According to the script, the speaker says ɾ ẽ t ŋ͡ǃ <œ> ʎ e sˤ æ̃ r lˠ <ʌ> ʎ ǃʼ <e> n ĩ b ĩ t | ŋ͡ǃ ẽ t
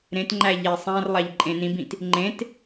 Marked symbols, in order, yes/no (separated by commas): no, no, no